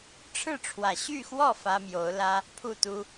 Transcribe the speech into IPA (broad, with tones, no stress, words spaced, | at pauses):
ʈ͡ʂʰɻ̩˥˩ ʈ͡ʂʰwä˨˩ ɕy˥˧xwɔ˥˩ fä˥mjo˧˥ʊ̯lä˥ | pʰu˥˩t̪u˥